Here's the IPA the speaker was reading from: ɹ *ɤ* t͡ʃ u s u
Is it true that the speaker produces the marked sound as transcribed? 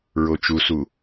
no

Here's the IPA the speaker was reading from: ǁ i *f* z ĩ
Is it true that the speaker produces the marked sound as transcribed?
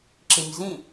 no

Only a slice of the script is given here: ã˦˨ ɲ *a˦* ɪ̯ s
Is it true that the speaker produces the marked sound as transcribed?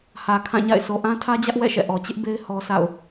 no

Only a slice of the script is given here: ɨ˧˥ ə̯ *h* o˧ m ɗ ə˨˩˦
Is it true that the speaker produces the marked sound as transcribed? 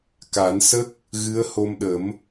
yes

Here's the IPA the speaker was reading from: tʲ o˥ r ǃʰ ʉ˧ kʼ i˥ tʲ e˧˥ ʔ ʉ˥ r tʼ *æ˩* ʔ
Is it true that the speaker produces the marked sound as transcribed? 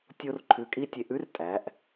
no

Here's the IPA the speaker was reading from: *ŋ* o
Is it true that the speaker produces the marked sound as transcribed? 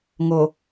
yes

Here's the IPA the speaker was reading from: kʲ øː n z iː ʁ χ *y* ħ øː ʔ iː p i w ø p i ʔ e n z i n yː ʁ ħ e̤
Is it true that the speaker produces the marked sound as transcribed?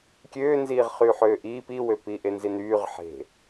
yes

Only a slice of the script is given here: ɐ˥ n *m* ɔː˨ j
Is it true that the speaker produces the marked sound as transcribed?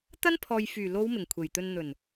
no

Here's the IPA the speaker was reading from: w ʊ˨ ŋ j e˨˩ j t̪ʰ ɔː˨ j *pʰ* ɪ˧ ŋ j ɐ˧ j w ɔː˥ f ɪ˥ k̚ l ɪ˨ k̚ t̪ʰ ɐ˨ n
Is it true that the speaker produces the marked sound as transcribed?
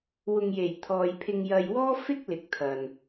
yes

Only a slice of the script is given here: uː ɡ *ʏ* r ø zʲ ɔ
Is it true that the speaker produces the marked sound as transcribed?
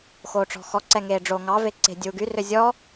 no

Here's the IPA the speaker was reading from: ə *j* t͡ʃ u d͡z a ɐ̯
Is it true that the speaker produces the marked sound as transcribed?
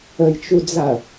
yes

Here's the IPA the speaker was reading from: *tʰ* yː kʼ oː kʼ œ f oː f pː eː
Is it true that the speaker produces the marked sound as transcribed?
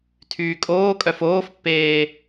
yes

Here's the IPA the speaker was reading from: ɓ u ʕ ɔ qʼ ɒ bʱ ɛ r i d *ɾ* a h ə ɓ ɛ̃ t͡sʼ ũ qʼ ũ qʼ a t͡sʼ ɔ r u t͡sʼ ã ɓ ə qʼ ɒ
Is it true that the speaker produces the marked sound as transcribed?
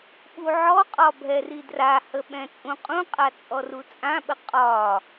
no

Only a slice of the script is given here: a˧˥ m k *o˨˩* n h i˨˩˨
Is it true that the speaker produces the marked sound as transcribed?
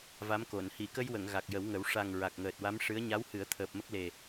no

